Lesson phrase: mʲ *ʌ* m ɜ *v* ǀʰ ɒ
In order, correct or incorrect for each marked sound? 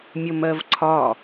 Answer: correct, correct

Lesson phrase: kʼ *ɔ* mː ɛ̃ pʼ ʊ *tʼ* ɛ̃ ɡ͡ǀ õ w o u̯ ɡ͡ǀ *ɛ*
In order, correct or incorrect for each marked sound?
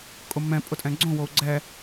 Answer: incorrect: ʊ, correct, correct

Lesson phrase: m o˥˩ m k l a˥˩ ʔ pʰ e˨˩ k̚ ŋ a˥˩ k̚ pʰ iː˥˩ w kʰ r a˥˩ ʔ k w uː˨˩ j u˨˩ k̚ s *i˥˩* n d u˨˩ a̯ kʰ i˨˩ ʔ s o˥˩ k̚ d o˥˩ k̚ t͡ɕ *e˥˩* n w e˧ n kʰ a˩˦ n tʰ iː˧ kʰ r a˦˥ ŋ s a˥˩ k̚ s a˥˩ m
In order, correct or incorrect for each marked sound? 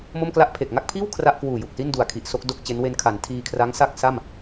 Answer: correct, incorrect: e˦˥

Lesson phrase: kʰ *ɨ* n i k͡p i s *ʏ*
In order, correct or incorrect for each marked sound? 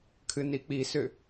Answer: correct, correct

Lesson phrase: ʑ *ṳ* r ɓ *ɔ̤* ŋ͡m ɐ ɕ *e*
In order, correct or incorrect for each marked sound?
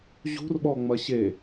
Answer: correct, incorrect: ɔ, correct

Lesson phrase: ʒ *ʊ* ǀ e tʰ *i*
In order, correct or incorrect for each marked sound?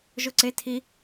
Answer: correct, correct

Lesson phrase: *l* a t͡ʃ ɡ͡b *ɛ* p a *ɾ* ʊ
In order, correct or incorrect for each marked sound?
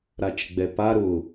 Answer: incorrect: ɾ, correct, correct

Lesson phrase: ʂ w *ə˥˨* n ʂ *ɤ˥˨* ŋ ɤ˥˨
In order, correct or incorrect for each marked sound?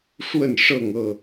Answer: correct, correct

